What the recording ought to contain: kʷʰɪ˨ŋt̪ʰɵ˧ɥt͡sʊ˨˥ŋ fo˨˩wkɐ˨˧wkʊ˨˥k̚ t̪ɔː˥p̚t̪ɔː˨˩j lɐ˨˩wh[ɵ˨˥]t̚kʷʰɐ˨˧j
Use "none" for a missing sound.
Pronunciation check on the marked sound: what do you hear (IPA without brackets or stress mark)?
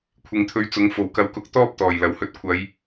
ɵ˧